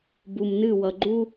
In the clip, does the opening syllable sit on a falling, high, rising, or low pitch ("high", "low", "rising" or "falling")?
low